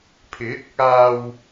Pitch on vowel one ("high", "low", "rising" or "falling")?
rising